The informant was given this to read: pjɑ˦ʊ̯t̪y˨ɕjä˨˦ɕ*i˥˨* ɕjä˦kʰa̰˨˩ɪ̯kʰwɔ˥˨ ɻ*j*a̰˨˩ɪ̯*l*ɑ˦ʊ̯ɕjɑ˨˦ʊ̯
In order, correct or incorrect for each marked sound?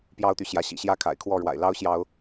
incorrect: ḭ˨˩, incorrect: w, correct

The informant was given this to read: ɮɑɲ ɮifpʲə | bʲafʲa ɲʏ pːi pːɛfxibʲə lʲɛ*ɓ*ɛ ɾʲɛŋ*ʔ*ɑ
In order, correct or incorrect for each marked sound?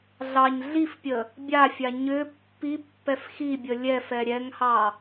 incorrect: f, incorrect: h

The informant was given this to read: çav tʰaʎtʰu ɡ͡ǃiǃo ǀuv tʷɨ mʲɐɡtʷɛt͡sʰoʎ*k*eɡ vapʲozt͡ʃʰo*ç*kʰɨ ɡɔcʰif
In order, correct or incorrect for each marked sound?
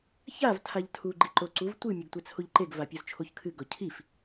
incorrect: ǃ, correct

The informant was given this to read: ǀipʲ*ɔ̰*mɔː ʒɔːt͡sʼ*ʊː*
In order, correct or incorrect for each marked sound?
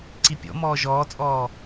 correct, incorrect: ɔː

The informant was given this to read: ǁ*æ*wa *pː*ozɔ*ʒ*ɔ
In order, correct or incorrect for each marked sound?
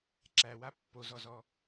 correct, correct, incorrect: z

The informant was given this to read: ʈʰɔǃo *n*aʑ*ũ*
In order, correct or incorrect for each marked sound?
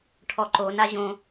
correct, incorrect: õ

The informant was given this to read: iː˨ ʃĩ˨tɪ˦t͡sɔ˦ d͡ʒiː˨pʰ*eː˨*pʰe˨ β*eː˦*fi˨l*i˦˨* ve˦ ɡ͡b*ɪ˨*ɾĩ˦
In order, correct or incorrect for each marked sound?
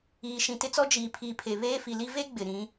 incorrect: iː˨, correct, incorrect: i˦, correct

